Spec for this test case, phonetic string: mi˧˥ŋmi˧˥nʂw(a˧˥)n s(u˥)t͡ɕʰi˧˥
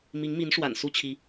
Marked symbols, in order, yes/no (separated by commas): no, yes